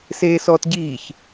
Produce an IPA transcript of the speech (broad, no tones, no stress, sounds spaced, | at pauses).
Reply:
s eː s ɔː t ɟ iː ç